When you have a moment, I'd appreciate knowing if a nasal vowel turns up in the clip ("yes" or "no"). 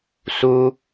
no